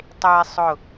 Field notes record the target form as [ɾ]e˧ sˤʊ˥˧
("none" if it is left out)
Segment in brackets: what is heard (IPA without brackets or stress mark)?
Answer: tˤ